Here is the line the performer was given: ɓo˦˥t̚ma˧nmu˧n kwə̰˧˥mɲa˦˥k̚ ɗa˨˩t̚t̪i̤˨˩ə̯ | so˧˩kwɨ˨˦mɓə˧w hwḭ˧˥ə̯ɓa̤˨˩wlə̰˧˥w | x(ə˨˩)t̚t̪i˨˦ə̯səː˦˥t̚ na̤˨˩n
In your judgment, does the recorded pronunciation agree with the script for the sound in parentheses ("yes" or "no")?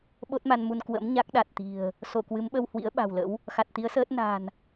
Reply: no